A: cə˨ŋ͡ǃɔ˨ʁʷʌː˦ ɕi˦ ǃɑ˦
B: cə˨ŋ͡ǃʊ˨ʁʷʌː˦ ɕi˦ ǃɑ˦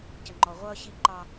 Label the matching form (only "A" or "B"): A